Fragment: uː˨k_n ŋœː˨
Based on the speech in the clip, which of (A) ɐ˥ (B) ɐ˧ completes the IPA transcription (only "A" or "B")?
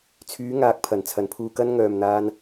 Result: B